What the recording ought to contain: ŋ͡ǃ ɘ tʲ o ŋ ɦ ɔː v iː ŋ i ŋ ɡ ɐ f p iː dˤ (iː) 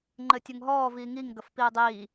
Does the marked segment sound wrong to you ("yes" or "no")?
no